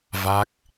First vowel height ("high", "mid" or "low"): low